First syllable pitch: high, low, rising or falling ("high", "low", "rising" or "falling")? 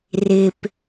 low